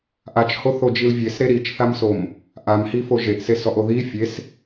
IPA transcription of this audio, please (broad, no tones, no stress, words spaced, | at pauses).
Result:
ʔat͡ʃhoθod͡ʒil vʲesɾe ɾit͡ʃθamsom | ʔamhifo ʒeʔsesɔʔo ði fʲes